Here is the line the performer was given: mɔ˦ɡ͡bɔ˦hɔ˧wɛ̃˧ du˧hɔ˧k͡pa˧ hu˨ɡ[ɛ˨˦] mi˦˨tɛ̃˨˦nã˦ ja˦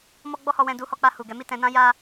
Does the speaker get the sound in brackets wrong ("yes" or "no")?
no